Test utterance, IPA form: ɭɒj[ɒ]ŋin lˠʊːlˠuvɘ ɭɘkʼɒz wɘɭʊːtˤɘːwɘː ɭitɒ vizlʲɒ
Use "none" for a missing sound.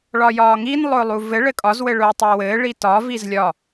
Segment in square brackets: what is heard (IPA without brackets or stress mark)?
ɒː